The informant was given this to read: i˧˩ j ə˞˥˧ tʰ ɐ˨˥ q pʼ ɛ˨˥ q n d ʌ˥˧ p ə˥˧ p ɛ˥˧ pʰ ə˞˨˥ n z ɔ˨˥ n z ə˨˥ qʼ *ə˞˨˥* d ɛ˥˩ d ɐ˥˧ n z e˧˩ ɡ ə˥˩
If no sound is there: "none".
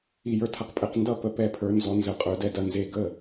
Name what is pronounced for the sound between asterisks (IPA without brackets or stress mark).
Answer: ə˞˨˥